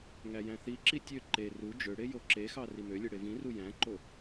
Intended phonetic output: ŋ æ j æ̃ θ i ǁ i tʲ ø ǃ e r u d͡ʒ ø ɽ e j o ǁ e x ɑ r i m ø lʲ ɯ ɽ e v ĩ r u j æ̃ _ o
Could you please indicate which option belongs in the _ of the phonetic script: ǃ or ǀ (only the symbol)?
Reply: ǃ